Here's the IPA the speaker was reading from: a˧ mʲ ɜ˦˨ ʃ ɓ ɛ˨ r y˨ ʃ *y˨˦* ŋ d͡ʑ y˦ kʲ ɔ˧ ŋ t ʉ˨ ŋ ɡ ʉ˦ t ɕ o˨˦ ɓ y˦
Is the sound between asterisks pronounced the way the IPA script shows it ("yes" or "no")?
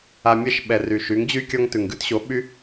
yes